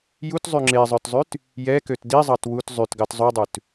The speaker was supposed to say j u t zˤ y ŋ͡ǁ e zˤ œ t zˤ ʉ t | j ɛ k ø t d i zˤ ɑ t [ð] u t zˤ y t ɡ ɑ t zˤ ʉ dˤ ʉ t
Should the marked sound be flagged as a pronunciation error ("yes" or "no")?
yes